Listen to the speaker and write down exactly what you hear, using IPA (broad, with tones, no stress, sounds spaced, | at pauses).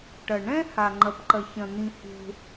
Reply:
ʈ ɐ˩ ɳ ɛ̃˥ h a˩ ŋ͡ǃ ɐ˩ p ǃ ɐ˩ ç ɐ̃˩ n̪ ĩ˩ h e̤˩